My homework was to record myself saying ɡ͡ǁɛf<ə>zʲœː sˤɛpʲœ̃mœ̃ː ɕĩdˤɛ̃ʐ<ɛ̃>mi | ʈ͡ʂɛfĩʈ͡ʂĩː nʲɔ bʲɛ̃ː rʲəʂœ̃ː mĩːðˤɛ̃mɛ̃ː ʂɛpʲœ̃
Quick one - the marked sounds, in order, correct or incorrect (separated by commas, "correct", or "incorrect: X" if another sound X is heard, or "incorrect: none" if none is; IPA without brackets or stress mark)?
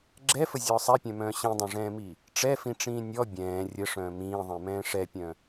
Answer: correct, incorrect: ɛ̃ː